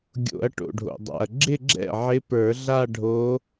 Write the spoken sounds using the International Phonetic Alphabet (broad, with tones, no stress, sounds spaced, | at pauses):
ɡʲ o̰˨˩˦ ɐ̯ ʈ o̰˩ ɖʱ o̰˩ dˤ a̰˩ ɐ̯ ɡ͡ǁ ɪ˥˧ ɡ͡ǁ ɛ̰˥˩ ʕ ɪ˧˥ p ə˞˨˩˦ ɮ a˥˧ ɖʱ o˧˥